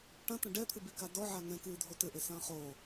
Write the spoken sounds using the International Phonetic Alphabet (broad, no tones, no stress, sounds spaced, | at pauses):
ʈ ɐ̃ t ɐ̃ ɖ ɛ t̪ʰ ɨ b i k a d ɔ ʕ a ŋ ɛ̃ k ɨː dʱ o t ɘ ʔ e s ɐ̃ː χ o